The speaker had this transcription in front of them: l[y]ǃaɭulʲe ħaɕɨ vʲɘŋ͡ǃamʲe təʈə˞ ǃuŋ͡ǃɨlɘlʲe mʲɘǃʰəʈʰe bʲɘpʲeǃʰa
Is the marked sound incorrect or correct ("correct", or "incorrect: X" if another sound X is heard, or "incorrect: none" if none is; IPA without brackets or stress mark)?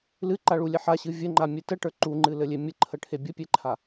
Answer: incorrect: ɨ